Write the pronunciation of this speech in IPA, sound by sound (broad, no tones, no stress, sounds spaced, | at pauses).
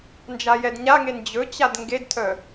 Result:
n d͡ʒ a j ɛ d ɲ a ŋ e n d͡ʑ ɵ t͡ɕ a d ŋ ɡ e d tʰ œ